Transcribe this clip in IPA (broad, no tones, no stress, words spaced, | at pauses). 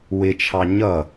wɪt͡ʃʰɑ ɲʌ